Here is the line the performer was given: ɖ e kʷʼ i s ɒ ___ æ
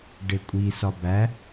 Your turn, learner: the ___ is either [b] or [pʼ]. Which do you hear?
b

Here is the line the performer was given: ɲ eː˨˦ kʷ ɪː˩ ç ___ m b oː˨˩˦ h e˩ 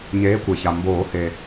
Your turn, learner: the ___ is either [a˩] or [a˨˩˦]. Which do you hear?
a˩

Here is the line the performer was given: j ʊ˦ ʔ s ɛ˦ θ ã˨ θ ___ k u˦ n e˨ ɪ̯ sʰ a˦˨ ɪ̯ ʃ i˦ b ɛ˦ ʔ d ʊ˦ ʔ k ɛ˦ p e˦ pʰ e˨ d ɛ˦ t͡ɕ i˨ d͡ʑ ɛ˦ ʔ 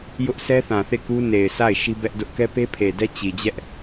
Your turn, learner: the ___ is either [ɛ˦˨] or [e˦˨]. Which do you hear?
e˦˨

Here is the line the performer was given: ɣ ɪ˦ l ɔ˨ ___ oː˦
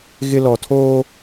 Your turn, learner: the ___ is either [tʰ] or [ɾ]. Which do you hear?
tʰ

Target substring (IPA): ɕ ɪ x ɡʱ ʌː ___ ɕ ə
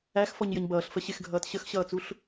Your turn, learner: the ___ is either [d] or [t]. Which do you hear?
t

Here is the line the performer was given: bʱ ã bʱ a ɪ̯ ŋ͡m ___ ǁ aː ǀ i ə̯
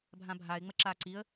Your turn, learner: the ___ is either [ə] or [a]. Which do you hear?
ə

